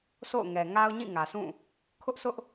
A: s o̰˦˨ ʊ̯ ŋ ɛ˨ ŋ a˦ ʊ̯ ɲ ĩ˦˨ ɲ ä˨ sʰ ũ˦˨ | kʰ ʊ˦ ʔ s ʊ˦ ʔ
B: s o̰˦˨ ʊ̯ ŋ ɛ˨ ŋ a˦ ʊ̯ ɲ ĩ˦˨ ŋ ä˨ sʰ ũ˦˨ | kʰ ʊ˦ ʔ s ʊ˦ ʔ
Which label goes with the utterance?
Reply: B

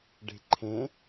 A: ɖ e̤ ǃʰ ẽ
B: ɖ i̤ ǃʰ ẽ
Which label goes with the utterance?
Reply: A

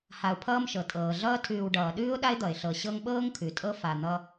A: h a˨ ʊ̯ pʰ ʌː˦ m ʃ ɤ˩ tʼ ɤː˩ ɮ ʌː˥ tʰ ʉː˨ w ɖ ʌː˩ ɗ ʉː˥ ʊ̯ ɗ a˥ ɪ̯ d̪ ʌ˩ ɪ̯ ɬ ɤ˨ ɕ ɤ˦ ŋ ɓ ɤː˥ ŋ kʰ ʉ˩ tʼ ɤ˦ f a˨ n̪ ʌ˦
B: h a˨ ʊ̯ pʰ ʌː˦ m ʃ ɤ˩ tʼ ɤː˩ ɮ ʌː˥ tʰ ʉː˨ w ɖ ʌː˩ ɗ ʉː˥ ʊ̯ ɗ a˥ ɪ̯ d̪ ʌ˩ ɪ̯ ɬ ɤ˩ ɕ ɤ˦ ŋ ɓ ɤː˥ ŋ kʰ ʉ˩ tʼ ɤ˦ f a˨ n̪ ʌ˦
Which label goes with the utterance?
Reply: A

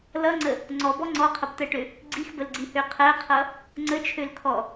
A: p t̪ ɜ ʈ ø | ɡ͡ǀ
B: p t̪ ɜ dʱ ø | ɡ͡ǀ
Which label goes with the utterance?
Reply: A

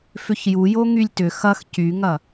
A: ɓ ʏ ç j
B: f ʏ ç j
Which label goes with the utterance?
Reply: B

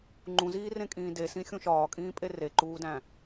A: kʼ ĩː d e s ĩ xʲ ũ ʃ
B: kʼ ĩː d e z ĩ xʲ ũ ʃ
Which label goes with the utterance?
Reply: A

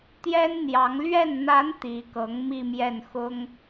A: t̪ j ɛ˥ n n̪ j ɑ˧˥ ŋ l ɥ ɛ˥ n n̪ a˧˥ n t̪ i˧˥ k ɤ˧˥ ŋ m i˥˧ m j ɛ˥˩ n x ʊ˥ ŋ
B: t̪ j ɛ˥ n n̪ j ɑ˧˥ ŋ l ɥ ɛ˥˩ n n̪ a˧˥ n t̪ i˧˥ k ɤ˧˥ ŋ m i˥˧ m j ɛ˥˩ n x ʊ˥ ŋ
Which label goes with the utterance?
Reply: B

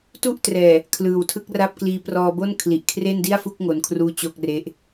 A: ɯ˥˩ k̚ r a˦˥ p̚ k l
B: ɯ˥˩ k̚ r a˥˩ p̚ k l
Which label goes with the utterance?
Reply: B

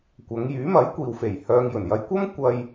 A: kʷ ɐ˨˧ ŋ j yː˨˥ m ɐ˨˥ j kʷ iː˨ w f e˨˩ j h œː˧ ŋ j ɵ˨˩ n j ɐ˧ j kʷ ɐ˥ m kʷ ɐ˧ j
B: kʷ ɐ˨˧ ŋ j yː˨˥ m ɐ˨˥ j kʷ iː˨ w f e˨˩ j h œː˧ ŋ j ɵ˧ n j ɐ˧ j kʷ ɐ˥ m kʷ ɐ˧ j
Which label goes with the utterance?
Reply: A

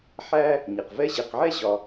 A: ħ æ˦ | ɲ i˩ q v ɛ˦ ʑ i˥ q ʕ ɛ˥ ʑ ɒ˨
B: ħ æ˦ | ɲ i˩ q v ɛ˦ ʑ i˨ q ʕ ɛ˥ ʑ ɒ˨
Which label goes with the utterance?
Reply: B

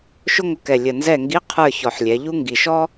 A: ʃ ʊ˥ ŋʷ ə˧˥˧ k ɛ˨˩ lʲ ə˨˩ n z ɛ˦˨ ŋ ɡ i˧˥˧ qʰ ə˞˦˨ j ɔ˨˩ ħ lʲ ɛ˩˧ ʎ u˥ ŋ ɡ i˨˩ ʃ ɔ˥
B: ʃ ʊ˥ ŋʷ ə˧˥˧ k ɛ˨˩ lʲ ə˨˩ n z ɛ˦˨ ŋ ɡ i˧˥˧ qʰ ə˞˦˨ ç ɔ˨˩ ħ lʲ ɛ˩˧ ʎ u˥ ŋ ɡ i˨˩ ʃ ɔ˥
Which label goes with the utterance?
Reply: B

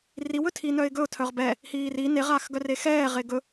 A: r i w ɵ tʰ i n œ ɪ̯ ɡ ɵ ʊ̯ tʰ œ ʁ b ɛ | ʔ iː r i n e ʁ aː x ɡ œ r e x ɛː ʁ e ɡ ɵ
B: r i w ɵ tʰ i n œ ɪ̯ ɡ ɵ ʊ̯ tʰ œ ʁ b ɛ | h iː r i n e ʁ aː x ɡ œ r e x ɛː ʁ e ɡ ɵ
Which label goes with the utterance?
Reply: B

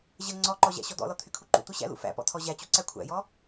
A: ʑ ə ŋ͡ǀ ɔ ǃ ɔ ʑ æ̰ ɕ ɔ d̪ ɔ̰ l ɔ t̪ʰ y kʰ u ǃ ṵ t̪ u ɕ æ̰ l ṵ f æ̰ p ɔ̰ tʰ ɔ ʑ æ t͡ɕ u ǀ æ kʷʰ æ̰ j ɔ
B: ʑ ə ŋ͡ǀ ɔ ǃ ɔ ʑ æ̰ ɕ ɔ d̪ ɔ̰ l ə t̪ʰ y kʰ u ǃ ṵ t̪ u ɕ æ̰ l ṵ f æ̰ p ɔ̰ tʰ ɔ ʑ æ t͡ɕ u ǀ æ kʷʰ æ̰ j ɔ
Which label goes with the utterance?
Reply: A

